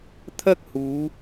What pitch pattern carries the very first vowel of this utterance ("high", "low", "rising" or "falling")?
high